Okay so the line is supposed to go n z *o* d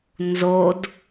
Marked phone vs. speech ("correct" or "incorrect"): correct